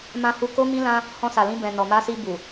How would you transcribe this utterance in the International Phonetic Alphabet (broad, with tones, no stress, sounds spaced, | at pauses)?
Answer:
m ã˧ h u˧ k o˦ m ĩ˦ l ã˦ | h ɔ̃˧ s a˨ l ĩ˧ b ɛ̃˨ n ɔ˨ m a˧ s i˧ b u˨